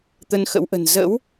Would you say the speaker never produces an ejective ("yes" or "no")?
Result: yes